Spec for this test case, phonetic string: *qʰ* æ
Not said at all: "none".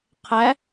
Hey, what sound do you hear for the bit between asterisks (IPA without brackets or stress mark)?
qʰ